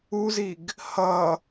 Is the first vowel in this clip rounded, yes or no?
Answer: yes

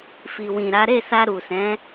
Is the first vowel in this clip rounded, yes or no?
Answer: no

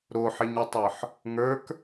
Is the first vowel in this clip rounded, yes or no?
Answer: yes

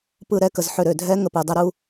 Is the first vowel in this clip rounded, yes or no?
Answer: no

